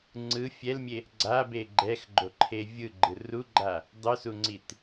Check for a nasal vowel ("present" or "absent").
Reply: absent